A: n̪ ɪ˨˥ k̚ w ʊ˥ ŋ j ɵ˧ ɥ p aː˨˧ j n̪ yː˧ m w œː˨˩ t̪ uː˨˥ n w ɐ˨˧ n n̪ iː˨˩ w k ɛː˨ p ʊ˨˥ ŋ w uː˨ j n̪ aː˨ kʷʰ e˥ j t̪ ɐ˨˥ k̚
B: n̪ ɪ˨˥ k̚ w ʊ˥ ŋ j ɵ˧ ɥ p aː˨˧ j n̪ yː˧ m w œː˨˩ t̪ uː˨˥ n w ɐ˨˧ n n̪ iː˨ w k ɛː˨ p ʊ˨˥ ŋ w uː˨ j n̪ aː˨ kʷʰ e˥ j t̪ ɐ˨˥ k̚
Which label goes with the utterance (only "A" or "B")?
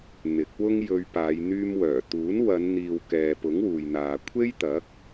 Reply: B